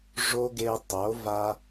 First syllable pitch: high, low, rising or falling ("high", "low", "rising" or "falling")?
high